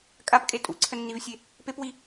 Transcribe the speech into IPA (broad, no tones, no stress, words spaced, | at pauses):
kʼapkʼe tʼṵǀʰənːivsʲe | pepwi